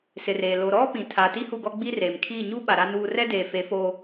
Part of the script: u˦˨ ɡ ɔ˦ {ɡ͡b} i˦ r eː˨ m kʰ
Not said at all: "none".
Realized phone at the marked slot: ɡ͡b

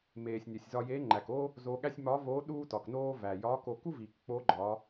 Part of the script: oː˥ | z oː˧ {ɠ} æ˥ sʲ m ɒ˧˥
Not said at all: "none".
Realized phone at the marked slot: ɠ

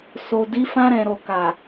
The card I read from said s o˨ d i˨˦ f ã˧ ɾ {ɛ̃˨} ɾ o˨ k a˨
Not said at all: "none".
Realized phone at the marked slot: ɛ̃˨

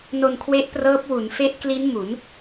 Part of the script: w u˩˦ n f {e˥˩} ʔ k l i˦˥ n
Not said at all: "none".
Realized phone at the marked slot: e˦˥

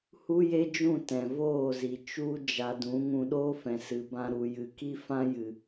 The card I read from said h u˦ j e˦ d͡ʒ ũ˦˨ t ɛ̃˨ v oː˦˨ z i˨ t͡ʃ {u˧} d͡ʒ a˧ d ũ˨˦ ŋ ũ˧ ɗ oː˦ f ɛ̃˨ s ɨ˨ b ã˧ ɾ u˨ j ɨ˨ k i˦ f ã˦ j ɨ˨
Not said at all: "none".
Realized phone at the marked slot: u˦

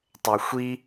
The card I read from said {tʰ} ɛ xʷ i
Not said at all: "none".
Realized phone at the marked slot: tˤ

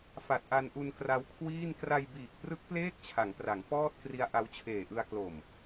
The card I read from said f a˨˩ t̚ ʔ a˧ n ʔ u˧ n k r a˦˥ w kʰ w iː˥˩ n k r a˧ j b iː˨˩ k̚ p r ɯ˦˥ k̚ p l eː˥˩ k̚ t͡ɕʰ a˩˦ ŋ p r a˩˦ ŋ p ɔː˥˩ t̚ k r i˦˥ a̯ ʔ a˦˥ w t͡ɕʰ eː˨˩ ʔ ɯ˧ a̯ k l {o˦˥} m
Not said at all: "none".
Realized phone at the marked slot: o˨˩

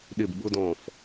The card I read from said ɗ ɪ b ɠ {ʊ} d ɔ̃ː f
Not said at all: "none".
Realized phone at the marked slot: ʊ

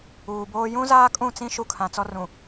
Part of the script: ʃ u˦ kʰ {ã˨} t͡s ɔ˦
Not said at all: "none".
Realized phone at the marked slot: ã˨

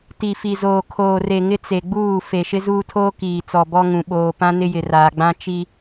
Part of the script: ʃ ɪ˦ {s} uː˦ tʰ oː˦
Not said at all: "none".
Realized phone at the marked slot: z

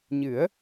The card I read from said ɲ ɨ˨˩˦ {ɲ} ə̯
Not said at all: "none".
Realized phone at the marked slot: none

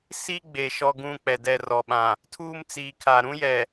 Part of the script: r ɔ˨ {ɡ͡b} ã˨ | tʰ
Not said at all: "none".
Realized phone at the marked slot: ɓ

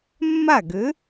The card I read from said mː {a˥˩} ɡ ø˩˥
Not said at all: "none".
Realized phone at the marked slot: a˥˩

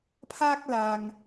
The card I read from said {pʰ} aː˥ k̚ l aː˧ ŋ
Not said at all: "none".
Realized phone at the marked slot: pʰ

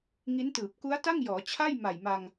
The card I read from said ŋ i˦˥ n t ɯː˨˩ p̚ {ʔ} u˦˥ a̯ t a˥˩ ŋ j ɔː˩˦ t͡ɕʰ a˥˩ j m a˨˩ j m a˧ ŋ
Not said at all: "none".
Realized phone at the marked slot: k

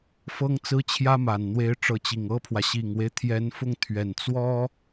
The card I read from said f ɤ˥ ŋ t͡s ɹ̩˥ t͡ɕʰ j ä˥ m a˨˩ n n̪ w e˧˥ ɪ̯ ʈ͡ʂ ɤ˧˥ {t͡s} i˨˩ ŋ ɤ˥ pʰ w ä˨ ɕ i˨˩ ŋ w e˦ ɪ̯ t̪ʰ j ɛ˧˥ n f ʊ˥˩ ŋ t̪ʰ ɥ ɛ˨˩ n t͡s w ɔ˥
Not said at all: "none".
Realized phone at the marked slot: t͡ɕ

